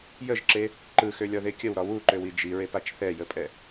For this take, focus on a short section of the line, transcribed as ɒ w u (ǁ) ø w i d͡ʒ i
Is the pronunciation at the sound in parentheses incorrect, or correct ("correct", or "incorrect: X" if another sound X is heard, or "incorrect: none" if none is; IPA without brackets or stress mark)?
incorrect: ǃ